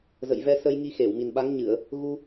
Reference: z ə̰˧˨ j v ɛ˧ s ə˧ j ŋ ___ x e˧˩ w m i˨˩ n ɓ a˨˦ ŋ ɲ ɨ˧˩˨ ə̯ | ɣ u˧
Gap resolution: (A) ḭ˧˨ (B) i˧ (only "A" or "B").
B